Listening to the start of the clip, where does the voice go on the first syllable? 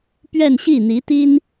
falling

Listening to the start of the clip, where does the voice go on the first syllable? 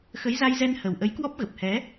rising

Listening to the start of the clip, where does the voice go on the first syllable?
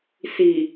low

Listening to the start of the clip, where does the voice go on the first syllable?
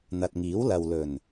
low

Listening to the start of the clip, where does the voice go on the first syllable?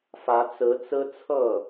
rising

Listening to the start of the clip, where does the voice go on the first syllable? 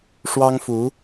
high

